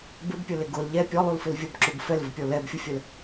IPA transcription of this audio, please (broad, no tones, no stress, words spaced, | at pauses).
bɪbpʲʊlɪ ɡʊl ʎɛ pʲɔlˠulfɪl vʲʊbǁub fɛlvɪpʲɔ lɛbfʲʊfʲəl